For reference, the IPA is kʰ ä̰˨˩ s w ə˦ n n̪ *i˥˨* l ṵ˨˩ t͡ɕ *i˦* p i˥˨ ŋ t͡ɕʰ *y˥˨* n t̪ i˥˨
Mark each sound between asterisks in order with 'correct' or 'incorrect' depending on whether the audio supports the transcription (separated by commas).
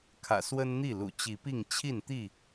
correct, incorrect, incorrect